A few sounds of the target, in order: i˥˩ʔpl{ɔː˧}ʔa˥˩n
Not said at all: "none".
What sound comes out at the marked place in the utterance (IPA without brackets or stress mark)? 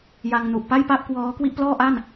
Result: ɔː˥˩